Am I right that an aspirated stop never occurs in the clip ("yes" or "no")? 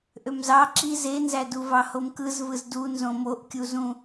yes